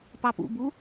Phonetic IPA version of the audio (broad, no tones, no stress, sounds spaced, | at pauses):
p ɑ p ṵ b u